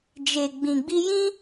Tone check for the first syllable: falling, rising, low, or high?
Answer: low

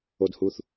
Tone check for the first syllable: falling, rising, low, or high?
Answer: low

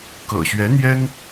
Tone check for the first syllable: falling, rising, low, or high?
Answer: low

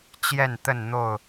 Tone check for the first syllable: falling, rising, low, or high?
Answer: falling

